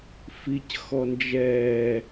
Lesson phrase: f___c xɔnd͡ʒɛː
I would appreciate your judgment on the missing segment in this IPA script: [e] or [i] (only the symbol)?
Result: i